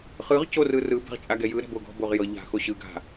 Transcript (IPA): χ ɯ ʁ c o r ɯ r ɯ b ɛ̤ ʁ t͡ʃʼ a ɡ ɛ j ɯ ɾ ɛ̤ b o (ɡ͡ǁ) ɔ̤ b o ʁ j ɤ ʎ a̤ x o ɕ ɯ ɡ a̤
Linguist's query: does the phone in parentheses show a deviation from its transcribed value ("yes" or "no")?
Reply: yes